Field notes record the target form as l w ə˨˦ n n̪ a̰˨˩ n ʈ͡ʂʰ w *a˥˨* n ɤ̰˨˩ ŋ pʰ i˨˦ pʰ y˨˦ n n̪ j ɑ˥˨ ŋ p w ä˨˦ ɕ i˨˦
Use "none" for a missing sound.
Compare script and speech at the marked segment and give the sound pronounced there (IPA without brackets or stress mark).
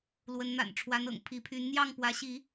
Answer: a˨˦